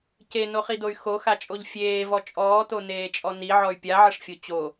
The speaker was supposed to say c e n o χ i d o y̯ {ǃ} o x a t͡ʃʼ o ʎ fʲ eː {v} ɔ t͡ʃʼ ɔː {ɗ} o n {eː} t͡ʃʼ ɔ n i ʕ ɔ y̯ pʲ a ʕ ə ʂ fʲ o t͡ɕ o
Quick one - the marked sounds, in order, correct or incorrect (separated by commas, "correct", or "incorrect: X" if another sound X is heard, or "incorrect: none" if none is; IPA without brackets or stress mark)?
incorrect: x, correct, incorrect: t, correct